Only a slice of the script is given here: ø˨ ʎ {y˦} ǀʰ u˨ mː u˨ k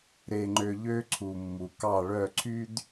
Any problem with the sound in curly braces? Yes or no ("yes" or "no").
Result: yes